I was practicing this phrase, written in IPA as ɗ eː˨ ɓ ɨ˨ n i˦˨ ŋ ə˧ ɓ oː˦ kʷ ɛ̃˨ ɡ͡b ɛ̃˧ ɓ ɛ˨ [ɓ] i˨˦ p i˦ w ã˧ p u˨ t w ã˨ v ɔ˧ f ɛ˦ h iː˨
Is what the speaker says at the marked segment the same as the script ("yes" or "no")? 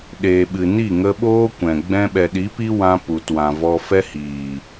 no